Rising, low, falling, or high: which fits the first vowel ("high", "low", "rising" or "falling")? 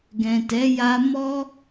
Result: low